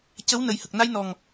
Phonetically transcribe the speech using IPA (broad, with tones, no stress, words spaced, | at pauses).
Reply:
cə˧˥w nə˨˩jhə˨˩k̚ na˧jnɔ˨˩ŋ